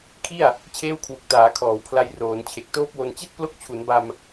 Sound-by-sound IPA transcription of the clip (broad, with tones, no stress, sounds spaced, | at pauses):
kʰ i˥˩ a̯ | t͡ɕʰ eː˦˥ w kʰ w u˨˩ k̚ t aː˩˦ kʰ ɔː˩˦ w pʰ l a˧ j r oː˩˦ n t͡ɕʰ e˨˩ k̚ t oː˦˥ p̚ w o˧ n t͡ɕ i˥˩ t̚ p l o˦˥ k̚ t͡ɕʰ u˩˦ n b a˧ m